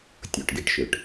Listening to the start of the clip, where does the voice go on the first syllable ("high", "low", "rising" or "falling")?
low